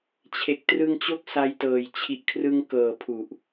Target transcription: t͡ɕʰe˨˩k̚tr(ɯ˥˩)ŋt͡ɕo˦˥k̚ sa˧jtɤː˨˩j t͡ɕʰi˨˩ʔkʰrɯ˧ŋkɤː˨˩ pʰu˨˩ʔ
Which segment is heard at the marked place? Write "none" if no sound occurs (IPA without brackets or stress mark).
ɯ˧